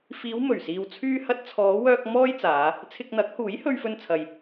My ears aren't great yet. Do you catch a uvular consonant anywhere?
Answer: no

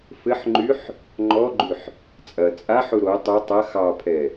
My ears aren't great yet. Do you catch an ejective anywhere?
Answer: yes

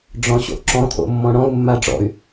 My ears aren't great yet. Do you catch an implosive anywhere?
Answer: no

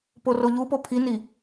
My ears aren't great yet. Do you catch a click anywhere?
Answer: no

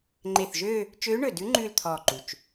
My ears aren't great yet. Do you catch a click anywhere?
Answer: yes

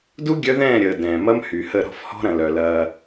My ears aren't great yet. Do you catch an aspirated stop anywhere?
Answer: no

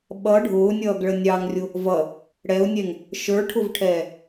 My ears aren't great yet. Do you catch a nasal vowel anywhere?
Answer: no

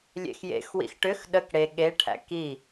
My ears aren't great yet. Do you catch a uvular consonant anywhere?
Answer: no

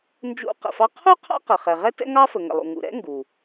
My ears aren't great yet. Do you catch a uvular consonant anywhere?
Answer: yes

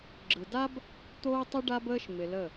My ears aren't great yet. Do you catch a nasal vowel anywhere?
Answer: no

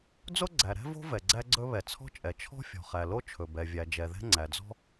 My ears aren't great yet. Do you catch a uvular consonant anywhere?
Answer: yes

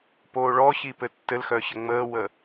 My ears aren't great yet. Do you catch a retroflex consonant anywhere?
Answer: yes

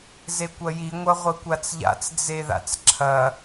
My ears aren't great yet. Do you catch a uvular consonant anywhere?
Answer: yes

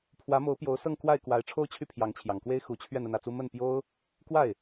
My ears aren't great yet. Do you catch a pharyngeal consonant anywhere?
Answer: no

